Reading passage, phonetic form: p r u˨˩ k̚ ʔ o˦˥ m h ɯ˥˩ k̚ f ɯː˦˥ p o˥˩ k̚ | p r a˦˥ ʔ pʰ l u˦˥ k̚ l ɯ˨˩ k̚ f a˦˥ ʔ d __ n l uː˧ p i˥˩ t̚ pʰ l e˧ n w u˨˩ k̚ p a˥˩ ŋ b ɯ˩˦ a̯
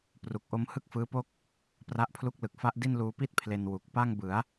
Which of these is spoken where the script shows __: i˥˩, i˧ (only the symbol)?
i˥˩